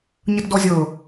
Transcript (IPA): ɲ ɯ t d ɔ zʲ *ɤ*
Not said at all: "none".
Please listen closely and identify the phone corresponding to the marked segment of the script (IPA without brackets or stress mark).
ɤ